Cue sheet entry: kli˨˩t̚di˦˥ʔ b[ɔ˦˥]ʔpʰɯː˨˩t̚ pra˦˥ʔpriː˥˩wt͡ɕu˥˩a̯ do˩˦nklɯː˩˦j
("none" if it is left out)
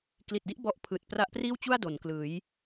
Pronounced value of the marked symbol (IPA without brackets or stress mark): ɔ˦˥